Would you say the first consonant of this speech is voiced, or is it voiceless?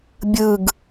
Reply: voiced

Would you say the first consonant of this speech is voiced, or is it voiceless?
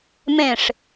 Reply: voiced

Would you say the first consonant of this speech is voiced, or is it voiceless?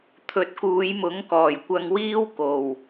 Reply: voiceless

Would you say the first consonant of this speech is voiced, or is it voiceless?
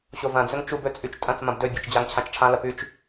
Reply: voiceless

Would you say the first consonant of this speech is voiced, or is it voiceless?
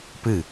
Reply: voiceless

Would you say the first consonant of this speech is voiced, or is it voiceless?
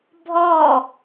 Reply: voiced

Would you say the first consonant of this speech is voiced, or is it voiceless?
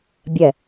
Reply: voiced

